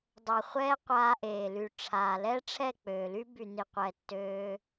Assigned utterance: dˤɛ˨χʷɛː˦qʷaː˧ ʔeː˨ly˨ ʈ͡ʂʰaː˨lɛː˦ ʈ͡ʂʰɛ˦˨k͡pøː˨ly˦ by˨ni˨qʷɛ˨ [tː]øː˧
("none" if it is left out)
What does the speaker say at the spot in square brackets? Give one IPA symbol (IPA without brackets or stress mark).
tː